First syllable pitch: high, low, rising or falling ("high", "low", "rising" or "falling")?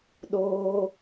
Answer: high